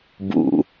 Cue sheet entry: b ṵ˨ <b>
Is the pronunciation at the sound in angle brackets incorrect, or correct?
incorrect